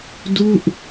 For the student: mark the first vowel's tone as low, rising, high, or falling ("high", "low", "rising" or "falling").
falling